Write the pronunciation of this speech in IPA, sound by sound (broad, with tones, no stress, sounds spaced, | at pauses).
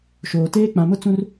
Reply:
ʃ oː˨ t eː˦ k͡p ã˨ m ʊ˦ t͡s ũ˦ r